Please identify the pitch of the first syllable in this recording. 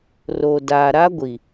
low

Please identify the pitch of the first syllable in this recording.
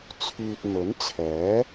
low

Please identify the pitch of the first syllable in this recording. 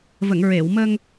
low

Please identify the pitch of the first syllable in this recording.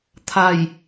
low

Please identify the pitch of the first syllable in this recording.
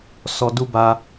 low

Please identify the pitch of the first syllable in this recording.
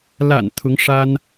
low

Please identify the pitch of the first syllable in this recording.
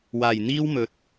low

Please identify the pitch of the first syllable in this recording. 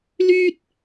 high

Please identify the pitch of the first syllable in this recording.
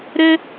high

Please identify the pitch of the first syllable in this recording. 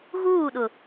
falling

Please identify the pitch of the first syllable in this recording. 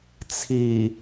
low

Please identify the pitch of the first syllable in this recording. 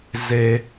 high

